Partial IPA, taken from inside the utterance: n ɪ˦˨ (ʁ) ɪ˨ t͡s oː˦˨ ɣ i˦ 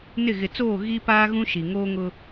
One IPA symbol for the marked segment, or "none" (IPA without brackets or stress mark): ɣ